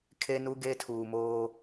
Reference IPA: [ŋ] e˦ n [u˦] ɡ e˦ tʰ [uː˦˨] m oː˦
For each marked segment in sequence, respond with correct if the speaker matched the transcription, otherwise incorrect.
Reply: incorrect, correct, incorrect

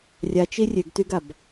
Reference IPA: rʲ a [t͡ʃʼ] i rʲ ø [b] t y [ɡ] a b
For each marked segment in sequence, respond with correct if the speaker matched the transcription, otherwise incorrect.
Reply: incorrect, incorrect, correct

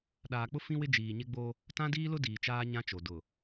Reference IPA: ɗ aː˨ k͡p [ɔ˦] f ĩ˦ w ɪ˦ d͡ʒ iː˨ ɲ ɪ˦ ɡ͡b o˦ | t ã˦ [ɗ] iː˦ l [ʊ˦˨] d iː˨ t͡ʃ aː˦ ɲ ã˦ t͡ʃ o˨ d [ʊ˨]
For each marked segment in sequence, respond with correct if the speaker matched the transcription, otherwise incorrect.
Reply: incorrect, incorrect, incorrect, correct

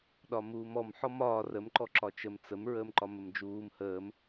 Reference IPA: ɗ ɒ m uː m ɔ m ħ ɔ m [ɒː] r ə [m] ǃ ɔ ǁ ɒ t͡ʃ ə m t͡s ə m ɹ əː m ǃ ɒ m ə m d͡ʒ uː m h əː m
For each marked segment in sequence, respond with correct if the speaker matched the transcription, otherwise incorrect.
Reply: correct, correct

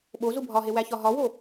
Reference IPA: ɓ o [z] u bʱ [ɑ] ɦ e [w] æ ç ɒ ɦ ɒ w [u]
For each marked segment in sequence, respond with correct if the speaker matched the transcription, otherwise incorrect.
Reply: correct, incorrect, correct, incorrect

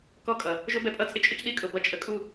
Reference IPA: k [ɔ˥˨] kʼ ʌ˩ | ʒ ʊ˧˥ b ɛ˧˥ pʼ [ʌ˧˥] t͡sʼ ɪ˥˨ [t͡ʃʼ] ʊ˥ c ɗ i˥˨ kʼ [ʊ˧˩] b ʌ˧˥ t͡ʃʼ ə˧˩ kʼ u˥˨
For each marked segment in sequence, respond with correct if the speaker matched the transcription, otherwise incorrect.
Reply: correct, incorrect, correct, correct

